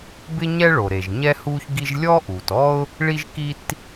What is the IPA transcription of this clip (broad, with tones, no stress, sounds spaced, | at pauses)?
b ɪ˥ ɲ ɛ˥ ɭ o˩ ɾ e˩ ʒ ɲ ɛ˥ h uː˥ ç ɡ i˥ ʒ lʲ ɔ˥ ʔ uː˩ t ɔ˥ ʊ̯ | ɭ i˥ ʒ k i˥ t